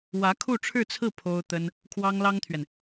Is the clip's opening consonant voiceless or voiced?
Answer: voiced